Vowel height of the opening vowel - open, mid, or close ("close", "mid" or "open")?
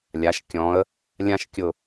open